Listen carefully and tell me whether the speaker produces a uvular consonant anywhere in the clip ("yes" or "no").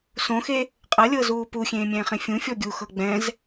yes